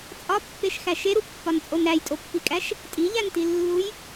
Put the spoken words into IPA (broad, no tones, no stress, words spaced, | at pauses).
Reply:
t͡sʼɒpːeʃxæ ʃeɾupːɒnt͡sʼon ɾæjtʼopːikʼæʃ | tʼiʎæntilːuj